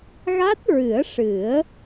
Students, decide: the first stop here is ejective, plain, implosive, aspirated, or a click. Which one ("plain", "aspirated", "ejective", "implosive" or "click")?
plain